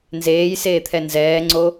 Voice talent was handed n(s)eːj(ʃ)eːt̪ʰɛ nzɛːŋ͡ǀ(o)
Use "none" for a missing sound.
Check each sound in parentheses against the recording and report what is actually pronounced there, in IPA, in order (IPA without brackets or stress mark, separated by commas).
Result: z, s, o